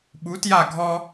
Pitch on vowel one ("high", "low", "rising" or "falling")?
rising